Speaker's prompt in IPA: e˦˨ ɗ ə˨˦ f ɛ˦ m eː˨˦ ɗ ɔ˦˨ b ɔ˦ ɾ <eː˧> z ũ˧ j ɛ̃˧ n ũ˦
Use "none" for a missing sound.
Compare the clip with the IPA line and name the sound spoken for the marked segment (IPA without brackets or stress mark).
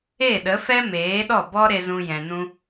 e˧